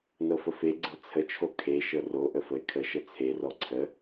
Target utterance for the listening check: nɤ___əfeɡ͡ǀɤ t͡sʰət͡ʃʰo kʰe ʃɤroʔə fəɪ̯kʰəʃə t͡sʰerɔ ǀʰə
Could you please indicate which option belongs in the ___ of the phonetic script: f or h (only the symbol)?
f